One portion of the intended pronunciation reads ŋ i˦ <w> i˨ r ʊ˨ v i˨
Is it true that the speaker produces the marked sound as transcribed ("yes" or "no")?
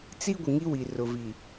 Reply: yes